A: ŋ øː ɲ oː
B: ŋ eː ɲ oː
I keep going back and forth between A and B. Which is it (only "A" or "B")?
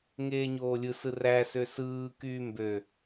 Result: B